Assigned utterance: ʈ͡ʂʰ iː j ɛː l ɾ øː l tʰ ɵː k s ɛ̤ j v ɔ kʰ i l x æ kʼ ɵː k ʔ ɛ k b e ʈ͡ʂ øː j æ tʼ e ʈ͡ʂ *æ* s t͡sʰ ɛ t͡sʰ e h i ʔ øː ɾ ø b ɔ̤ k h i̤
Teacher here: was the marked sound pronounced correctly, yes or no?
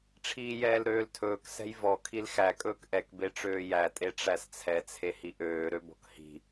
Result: yes